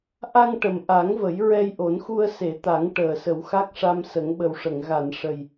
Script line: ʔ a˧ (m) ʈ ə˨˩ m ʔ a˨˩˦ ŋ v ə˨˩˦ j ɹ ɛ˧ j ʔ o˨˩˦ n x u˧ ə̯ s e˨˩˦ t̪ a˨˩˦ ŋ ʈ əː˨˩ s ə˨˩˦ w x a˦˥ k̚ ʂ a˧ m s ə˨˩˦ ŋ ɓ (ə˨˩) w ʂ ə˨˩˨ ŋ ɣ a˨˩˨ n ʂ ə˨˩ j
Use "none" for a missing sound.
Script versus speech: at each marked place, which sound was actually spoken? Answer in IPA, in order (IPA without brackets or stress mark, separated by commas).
ŋ, ə˨˩